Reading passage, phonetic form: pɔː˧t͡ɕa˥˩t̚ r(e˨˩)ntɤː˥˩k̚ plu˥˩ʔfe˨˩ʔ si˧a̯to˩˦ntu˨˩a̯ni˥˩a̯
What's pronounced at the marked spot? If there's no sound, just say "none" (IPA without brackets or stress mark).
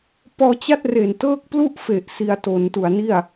e˨˩